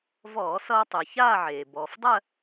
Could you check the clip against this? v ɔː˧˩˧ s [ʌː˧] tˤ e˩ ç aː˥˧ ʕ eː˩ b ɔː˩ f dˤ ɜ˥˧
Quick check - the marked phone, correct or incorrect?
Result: correct